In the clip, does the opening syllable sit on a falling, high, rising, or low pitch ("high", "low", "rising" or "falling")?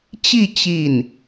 falling